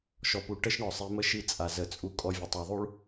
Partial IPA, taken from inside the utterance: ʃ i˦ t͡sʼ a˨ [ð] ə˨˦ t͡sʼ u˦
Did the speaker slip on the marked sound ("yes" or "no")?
yes